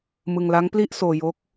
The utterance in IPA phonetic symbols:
mɯ˧ŋla˦˥ŋpli˥˩ʔ soː˧jo˦˥k̚

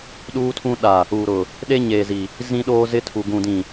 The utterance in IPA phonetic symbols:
ɗuː˦tʰũ˦ ɗa˨ | u˨ɾʊ˨ | ɗe˦ɲeː˨zi˨ | zĩ˦ɗoː˦ zɪ˦tʰu˨ ɡũ˨dĩ˨

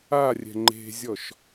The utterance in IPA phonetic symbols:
a rʲɛ̤ŋ͡ǃe̤zʲɔʃ

